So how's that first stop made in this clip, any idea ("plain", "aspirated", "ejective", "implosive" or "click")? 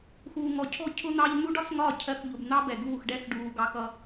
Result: aspirated